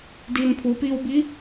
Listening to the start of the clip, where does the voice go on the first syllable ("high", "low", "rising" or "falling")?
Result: low